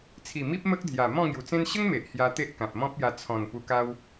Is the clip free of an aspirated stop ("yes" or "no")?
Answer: no